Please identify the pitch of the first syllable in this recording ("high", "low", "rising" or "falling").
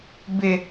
high